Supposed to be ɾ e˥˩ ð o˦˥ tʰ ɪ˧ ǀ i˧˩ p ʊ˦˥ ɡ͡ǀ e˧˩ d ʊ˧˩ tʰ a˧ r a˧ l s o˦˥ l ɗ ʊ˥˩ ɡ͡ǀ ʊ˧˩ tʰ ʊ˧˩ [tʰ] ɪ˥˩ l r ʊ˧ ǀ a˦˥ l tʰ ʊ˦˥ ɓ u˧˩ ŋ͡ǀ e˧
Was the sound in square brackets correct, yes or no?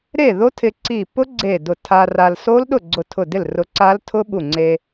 no